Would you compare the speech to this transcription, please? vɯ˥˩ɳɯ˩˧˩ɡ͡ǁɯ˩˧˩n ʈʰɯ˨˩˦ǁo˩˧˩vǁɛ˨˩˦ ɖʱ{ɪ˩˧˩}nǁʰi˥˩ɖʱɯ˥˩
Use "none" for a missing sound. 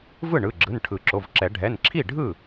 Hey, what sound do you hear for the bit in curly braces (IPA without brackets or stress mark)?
ɛ˩˧˩